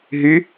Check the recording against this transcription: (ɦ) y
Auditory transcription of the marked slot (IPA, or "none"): ɦ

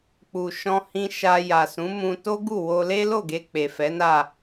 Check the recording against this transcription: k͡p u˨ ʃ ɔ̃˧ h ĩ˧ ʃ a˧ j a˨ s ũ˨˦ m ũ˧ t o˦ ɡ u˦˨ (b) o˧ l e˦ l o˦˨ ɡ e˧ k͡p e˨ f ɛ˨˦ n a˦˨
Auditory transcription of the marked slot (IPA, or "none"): w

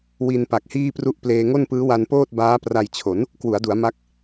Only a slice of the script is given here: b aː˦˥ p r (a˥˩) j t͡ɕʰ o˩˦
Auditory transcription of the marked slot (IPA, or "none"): a˧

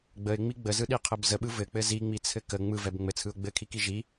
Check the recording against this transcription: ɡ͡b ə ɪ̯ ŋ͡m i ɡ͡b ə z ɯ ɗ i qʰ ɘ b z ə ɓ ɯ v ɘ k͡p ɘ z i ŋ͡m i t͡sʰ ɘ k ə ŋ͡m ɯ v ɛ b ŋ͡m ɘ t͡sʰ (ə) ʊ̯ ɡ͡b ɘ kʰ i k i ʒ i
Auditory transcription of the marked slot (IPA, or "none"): ɯ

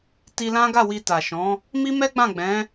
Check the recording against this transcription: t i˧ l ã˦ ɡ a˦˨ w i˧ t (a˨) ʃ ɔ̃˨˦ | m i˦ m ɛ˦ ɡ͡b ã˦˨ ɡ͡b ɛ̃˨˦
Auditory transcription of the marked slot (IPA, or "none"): a˨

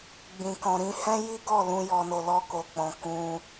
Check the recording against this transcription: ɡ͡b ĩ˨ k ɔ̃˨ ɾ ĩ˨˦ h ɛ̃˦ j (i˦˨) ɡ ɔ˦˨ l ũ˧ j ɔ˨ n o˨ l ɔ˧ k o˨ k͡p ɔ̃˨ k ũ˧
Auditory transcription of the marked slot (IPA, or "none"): i˦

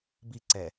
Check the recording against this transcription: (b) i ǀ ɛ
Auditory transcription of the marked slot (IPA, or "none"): b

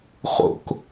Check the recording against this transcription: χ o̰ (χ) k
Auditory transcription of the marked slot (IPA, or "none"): none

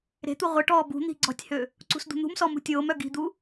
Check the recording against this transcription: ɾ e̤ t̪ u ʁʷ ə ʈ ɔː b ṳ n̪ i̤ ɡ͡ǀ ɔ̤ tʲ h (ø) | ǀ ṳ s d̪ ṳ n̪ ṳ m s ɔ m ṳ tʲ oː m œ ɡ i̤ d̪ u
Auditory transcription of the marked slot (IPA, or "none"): ø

